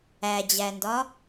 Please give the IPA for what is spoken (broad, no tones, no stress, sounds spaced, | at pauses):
æ d͡ʑ æ n d ɒ